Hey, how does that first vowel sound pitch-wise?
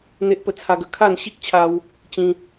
high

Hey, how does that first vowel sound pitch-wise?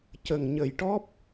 low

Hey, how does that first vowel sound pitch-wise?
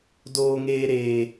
low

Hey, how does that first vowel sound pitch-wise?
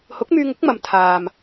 rising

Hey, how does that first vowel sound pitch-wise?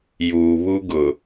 low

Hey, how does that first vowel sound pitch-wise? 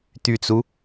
low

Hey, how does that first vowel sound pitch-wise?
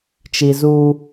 low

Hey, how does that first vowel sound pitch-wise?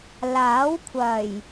rising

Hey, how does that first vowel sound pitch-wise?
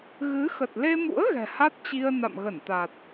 rising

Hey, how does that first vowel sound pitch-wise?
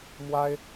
high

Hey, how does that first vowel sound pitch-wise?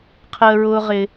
low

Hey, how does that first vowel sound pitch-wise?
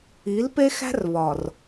rising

